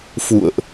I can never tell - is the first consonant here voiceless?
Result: yes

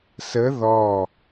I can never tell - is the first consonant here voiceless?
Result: yes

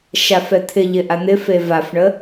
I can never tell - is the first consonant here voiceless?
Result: yes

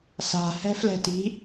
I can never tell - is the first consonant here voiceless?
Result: yes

